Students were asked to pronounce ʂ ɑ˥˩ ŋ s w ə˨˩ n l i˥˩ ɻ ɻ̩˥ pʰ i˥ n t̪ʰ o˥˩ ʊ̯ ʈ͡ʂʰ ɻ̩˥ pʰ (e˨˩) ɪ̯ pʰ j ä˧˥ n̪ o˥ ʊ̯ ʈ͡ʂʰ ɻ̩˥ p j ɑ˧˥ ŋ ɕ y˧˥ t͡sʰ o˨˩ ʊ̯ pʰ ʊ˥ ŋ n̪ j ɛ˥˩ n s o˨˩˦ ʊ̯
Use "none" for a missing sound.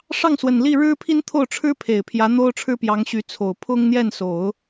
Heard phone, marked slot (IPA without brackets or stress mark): e˨˩